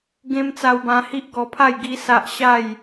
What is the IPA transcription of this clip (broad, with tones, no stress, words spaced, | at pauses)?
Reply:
ɡẽ˦m t͡sa˧wbã˧hi˦ʔ ɡɔ˧pʰa˥˧j ɡi˦sa˦ʔ ɕa˥˧j